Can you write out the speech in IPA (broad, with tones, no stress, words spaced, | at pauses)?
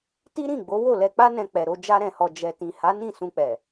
ti˦ɾĩ˦˨ ɡ͡bo˨˦wo˦˨lɛ˧ k͡pa˦nɛ̃˧ k͡pɛ˨ɾo˧ d͡ʒa˧ɾɛ̃˨hɔ˨ d͡ʒɛ˨tĩ˨ ha˨˦ nĩ˦˨sũ˧k͡pɛ˨